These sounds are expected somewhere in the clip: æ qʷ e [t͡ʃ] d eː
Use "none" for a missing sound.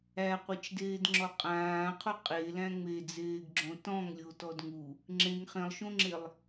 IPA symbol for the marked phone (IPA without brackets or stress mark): t͡ʃ